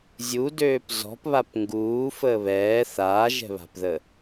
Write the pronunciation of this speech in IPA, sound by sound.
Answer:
zʲ u d øː p z ɔ̤ p β a p ŋ ɡ uː f əː β ɛː θ aː ʒ ɛ̤ β a̤ p ð ə

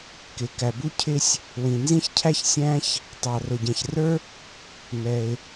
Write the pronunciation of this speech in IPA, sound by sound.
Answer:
k ɪ˩ k æ˩ b u˥ cʰ ɪ˥ sʲ | w ĩ˩ n z ĩ˥ ç cʰ æ˥ ç sʲ æ̃˥ ç | tˤ ɑ˩ r ʊ˩ ɟ ɛ̃˩ ç r ə˞˥ | m ɛ˩ ɪ̯

